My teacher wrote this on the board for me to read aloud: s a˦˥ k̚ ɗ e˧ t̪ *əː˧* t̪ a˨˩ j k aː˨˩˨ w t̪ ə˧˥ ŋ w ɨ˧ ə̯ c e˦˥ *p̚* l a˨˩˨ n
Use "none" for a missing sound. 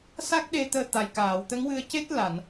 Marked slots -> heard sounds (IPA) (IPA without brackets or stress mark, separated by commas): əː˧, t̚